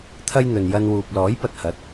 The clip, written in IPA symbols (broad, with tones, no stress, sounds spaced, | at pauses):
t̪ʰ ɐ˧ j n̪ ɵ˨ n j ɐ˧ n w uː˨ p̚ l ɔː˨˥ j p ɐ˨ t̚ h ɐ˨˥ t̚